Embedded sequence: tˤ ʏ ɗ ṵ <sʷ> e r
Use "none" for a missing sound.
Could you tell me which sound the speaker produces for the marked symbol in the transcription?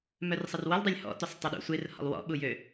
sʷ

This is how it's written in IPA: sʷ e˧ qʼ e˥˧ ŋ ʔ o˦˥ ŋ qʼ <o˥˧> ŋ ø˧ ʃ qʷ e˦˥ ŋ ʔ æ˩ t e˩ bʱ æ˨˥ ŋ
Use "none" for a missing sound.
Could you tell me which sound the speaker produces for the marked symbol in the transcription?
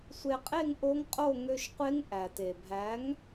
o˥˧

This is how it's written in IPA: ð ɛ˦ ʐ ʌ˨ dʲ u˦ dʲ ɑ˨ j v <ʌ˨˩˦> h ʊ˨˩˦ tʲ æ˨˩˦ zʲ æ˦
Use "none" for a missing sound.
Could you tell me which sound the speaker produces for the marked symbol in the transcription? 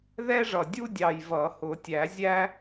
ʌ˨˩˦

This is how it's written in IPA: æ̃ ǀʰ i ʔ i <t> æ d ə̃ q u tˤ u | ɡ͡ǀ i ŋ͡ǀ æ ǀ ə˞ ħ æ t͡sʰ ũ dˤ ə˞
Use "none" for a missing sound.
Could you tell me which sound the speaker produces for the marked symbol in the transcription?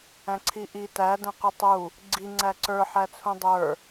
t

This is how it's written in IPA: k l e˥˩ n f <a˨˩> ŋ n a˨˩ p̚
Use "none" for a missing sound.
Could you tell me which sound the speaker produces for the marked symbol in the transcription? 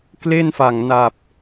a˨˩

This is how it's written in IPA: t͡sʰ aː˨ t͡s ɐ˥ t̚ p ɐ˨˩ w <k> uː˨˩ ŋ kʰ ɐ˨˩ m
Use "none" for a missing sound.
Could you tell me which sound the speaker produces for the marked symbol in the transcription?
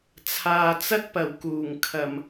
k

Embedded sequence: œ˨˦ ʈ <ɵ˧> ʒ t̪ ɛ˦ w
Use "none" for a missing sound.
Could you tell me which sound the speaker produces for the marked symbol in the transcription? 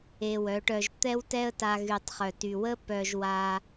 œ˧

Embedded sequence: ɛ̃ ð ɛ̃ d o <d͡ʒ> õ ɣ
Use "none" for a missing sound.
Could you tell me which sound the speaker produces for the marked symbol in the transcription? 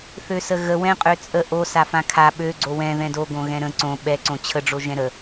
ɡ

